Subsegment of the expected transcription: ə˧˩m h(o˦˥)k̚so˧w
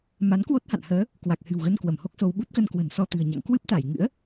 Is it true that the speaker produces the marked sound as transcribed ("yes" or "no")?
yes